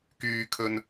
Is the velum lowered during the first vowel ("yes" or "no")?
no